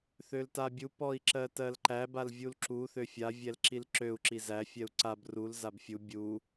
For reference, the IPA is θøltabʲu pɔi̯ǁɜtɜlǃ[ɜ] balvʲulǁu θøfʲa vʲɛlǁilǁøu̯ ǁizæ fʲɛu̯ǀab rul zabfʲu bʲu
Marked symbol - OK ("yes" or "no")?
no